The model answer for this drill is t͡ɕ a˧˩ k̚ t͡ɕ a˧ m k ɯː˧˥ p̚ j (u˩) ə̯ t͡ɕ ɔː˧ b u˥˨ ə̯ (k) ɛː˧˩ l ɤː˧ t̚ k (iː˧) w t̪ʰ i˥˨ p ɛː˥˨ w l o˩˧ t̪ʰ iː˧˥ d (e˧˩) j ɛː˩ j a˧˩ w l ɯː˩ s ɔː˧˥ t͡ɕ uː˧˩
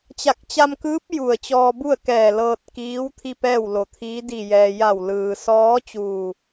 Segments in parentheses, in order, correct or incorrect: incorrect: u˧˩, correct, incorrect: iː˧˥, incorrect: i˧˩

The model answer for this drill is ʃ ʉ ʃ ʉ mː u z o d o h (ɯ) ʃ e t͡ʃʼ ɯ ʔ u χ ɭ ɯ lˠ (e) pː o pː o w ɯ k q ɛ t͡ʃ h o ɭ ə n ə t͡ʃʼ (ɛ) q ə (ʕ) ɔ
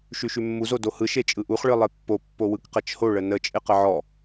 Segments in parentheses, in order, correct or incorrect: correct, correct, incorrect: ɪ, correct

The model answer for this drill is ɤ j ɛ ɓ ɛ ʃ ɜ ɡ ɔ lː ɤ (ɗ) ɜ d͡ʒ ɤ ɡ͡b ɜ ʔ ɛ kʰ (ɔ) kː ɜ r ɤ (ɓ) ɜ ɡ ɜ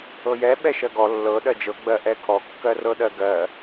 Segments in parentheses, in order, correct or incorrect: correct, correct, incorrect: ɗ

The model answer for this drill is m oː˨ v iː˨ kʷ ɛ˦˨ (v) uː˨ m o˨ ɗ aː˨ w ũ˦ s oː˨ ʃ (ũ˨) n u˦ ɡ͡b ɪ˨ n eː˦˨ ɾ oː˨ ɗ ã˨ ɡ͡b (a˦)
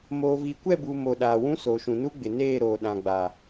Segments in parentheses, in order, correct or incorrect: incorrect: b, correct, incorrect: a˨

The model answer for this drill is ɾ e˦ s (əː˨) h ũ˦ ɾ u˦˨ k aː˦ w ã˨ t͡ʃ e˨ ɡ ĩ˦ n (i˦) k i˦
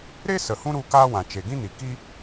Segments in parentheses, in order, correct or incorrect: incorrect: ə˨, incorrect: i˨

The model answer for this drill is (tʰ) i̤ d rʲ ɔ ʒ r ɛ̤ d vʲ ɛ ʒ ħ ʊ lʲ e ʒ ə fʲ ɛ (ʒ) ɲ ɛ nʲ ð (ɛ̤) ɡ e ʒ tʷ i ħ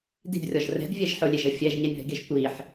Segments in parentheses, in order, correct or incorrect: incorrect: d, correct, correct

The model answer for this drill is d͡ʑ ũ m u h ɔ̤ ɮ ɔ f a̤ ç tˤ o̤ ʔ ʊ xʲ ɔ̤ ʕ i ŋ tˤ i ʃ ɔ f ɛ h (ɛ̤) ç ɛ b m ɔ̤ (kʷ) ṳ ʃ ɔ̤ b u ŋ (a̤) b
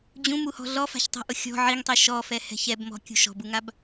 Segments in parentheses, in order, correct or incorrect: correct, incorrect: kʲ, incorrect: a

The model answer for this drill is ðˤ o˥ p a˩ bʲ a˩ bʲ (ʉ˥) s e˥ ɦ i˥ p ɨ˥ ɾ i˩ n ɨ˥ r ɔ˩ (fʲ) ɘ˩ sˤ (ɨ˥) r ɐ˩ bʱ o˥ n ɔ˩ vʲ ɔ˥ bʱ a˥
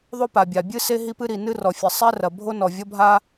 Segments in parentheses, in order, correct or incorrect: incorrect: ɨ˥, correct, incorrect: ɛ˥

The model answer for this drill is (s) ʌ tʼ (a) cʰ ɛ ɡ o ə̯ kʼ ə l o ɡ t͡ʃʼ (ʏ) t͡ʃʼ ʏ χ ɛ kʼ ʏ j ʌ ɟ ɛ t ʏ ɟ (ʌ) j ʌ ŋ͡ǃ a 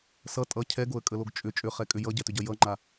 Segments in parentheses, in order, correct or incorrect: correct, incorrect: ʌ, correct, correct

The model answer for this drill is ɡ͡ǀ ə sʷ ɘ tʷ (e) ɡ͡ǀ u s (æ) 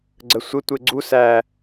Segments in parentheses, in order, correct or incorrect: correct, correct

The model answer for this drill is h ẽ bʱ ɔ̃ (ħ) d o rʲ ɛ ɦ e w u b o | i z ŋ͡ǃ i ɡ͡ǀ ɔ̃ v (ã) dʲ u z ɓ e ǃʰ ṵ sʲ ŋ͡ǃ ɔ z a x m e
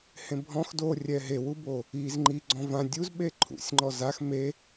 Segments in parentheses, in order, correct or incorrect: incorrect: x, correct

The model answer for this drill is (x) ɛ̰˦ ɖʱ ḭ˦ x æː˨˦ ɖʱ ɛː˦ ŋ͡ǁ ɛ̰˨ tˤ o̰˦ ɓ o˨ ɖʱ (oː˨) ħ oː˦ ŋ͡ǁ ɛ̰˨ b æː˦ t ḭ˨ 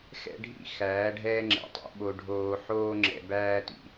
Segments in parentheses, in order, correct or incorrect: correct, correct

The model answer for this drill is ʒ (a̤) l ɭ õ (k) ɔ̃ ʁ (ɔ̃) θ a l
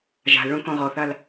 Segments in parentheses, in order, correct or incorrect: correct, correct, incorrect: ɔ

